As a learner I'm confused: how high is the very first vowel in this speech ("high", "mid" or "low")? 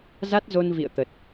low